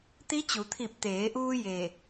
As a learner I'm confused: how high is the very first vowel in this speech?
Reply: high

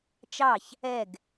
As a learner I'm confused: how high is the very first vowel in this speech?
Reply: low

